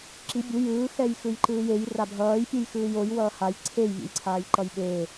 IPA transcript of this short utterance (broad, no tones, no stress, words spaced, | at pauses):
ǁi bʲu jɯː xɛjxɯjǃɯːjej rabʱʌːj pʲɯjxɯːjoj wʌːhaj ǀʰej vʲḛjǀʰaːjǃʌjɓe